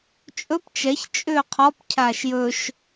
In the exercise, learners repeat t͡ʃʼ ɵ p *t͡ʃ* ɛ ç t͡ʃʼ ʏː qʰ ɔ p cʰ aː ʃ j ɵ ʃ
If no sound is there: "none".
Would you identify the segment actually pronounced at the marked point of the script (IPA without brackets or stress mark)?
t͡ʃ